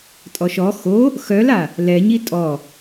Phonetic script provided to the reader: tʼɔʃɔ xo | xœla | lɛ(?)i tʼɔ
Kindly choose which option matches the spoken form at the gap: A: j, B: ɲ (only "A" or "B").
B